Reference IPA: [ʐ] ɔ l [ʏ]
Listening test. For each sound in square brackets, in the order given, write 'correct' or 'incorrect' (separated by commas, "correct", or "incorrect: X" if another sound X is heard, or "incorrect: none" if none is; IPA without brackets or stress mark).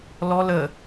incorrect: l, incorrect: ə